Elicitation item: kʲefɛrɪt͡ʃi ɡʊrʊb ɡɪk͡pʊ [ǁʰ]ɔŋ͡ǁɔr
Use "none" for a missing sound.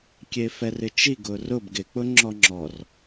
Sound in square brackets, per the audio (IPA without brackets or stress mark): ŋ͡ǁ